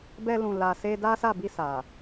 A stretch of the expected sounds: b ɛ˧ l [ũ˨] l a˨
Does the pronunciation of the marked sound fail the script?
no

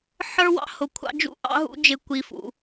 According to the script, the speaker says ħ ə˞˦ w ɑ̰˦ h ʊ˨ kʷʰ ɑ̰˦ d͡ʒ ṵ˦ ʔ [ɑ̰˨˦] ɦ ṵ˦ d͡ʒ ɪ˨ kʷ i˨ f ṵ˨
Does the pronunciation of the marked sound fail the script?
yes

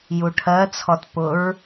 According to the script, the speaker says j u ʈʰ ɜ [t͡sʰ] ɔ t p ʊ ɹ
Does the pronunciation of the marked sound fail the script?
no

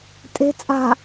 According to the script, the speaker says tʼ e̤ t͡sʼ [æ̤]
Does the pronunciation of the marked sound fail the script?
yes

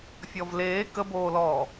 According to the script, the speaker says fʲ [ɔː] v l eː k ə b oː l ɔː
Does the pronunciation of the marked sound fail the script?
yes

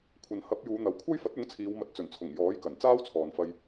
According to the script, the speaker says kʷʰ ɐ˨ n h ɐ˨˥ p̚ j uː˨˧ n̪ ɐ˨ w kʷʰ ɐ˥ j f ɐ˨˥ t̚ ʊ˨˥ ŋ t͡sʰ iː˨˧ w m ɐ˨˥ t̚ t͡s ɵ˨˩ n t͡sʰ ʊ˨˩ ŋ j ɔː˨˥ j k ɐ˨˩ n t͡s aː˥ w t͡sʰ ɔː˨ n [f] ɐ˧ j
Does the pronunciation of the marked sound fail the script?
no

